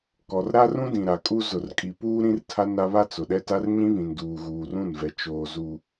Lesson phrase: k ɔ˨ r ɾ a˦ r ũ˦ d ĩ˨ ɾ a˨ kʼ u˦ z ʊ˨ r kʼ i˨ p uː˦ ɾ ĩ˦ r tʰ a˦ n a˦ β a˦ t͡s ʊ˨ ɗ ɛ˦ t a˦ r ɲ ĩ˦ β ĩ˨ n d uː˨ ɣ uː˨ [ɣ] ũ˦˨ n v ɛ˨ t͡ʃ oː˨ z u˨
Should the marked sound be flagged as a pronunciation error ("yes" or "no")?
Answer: yes